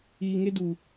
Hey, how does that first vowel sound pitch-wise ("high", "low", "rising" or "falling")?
low